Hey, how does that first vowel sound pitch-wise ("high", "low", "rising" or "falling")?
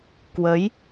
rising